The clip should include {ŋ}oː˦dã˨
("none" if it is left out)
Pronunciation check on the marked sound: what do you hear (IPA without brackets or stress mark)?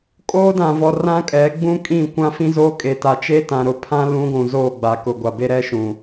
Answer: kʼ